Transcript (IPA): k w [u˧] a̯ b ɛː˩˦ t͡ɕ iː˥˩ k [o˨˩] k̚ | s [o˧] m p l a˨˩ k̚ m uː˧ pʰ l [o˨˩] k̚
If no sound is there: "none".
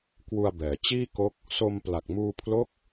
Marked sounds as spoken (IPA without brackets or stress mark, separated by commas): u˧, o˦˥, o˧, o˦˥